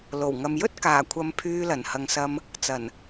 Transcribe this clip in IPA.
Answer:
l o˨˩ w ŋ ɐ˨ m j ɵ˥ t̚ k aː˨˩ kʷʰ ɐ˨ m pʰ yː˧ l ɐ˨˩ n h ɐ˨ ŋ s ɐ˧ m | t͡s ɐ˨˩ n

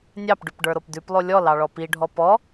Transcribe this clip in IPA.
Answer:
nʲ ɑ p ɖ ʉ p ɖ ə˞ ɾ o p d ʉ p lˠ o lʲ ɔ l ɑ ɭ ɔ p i ɖʱ ɔ p ɔ

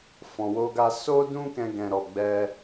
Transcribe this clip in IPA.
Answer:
f ɔ̃˨ w o˧ ɡ a˧ s o˦ d ũ˦ k ɛ̃˧ ɡ ɛ̃˨ ɾ ɔ˨ ɡ͡b ɛ˧

